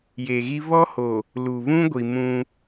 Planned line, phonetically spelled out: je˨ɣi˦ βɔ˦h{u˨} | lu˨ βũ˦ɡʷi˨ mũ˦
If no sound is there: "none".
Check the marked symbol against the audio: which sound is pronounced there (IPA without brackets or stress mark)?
o˨